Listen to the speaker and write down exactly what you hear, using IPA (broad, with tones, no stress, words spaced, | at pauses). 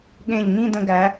ɠẽ˧˩ʎŋĩ˥˧də̃˧ɡæ˩˧